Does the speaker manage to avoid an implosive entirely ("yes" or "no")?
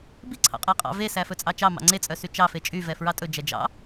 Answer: yes